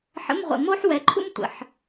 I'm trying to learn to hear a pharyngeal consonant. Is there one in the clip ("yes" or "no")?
yes